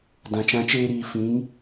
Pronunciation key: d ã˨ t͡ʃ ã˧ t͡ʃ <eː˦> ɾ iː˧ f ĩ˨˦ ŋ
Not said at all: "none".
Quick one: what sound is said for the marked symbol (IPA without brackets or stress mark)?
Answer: eː˦